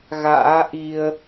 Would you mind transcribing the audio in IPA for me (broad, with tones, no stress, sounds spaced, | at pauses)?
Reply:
ɣ a̰ː˧˥ ʔ i˧ ə̯